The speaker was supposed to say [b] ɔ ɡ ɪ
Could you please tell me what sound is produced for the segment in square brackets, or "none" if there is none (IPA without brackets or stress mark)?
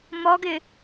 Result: m